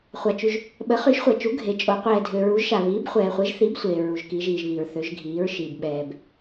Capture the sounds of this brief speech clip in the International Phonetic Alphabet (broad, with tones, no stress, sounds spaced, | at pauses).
χʷ a˨ t͡ʃ y˨ ʒ | ɓ ə˨˦ χ y˨˦ ʃ χʷ ɛ˨ t͡ʃ u˨˦ ɡʱ e˨˦ t͡ʃʼ o˨˦ qʷ ɛː˨ dʱ ø˨ ɹ u˨˦ ʒ ʃ a˨ β iː˨˦ b χʷ ɛː˨ χʷ e˨˦ ʒ θ i˨˦ b sʷ eː˨ ɹ u˨ ʒ k i˨˦ ʒ iː˨ ʒ β iː˨ ɹ θ ø˨˦ ʒ ɡʱ iː˨˦ ɹ ʃ iː˨ b ɓ ɛː˨ b